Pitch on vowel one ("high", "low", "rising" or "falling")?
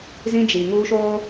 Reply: high